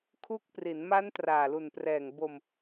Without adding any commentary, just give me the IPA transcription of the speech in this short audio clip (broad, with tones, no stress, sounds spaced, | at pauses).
kʰ u˦˥ k̚ p r i˩˦ n m a˦˥ n t r aː˨˩ l u˨˩ n p r ɛː˨˩ ŋ b o˧ m